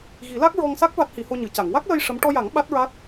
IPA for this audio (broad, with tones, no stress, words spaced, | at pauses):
ɣi˨˩˦la˦˥k̚ɹɔ˧ŋsa˦˥k̚ va˦˥t̚hi˨˩˦ho˧ɲɨ˨˩˨ ca˨˩˨ŋ wa˦˥k̚lə˧j ʂə˧˥m ʈɔ˧ja˨˩˦ŋ ɓa˦˥t̚ ɹa˦˥t̚